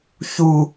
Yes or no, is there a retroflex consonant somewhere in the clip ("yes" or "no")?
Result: no